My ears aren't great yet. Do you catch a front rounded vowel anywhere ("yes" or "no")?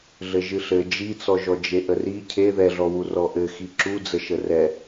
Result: no